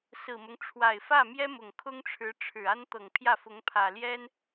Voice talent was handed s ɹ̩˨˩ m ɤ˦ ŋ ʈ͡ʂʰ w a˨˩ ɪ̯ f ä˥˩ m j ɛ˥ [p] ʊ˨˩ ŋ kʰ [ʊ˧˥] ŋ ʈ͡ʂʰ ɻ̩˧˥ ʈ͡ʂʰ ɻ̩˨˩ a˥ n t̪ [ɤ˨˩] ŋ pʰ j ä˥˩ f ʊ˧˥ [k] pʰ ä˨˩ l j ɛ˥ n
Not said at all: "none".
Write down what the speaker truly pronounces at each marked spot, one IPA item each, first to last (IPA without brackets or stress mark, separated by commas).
m, ʊ˥, ɤ˨˩, ŋ